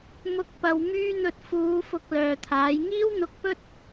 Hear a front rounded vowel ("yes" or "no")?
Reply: yes